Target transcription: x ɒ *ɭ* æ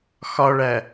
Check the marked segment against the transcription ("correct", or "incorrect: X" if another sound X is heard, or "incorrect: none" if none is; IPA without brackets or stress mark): correct